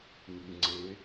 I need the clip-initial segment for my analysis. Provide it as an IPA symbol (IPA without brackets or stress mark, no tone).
ŋ